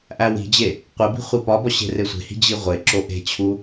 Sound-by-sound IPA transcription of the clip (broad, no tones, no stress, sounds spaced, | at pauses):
ʔ æ w i̤ d͡ʑ e | qʷ e b i̤ χʷ i p ɒ b ɒ ɕ e̤ r e sʷ e̤ h i̤ d͡ʑ i ʁʷ e ǁ o ʔ e̤ t͡ɕʰ u